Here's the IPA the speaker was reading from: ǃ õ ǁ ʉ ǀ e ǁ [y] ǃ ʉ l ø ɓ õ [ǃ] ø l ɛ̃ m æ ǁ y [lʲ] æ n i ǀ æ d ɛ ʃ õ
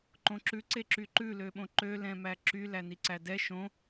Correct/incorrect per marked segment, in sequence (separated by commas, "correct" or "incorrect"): correct, correct, incorrect